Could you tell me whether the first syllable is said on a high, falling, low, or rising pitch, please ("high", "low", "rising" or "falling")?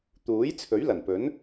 rising